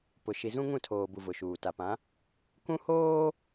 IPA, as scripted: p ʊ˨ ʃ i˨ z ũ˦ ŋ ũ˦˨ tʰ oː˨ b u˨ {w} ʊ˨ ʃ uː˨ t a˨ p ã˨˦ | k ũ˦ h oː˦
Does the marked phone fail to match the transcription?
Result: yes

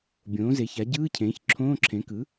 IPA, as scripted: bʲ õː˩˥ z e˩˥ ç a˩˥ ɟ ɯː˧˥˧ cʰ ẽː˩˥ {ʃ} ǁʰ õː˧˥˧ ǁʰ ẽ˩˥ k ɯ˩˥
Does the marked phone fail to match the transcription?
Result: yes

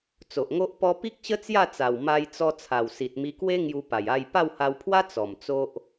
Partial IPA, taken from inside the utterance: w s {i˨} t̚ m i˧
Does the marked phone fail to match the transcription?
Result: no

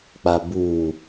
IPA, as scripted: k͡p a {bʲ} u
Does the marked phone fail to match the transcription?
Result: yes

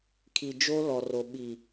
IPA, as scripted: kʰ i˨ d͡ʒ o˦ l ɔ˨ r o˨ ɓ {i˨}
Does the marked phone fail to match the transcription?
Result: no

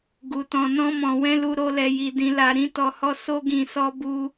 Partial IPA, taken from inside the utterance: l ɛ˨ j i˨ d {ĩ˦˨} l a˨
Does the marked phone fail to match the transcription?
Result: yes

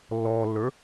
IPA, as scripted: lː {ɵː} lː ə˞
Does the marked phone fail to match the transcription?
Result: yes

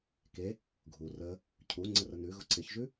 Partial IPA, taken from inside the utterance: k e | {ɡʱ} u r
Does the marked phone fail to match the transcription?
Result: no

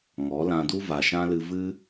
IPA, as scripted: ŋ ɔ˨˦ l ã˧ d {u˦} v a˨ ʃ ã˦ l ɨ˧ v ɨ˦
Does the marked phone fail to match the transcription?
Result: no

